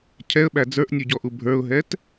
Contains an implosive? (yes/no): yes